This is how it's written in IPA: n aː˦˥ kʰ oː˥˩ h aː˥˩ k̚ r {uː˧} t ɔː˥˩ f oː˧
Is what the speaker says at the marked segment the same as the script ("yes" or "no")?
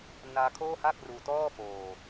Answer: yes